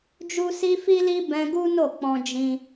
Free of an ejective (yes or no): yes